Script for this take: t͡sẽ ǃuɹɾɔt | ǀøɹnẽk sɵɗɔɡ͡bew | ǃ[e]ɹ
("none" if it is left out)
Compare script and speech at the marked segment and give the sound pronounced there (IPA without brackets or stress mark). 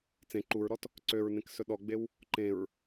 ẽ